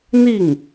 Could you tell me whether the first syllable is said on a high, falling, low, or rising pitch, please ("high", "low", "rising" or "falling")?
falling